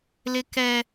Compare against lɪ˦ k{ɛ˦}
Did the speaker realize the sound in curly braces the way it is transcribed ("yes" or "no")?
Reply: yes